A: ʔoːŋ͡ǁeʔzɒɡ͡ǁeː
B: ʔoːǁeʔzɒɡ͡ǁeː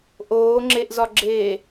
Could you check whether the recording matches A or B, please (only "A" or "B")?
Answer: A